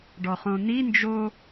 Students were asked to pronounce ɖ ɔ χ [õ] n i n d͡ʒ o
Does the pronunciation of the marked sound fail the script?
no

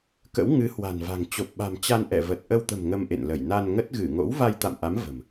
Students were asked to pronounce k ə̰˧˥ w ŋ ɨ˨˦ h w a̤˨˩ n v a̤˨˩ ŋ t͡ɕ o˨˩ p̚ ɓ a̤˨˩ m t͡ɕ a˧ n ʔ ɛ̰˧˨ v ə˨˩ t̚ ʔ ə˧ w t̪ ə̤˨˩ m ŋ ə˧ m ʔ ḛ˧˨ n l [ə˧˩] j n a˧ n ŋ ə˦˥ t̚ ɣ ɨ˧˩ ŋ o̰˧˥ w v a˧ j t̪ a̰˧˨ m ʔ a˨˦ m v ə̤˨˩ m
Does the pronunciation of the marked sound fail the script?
no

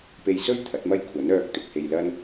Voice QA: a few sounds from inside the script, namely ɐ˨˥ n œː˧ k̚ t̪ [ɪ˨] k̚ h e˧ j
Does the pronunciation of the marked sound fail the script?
no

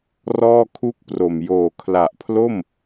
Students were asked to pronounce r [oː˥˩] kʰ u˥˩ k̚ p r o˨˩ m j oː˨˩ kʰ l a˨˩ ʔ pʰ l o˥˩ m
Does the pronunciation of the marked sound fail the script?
yes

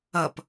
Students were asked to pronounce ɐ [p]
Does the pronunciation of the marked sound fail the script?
no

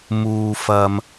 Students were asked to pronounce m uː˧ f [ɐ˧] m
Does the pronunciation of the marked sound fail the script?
no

